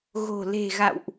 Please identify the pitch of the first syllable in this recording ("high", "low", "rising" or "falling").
low